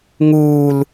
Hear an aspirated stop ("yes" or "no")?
no